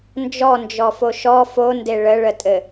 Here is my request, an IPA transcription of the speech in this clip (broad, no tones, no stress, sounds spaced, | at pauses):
n d͡ʒ ɔ n d͡ʒ ɔ f o ʃ ɔ f o n d e ɭ ə ɭ ə tʼ ɘ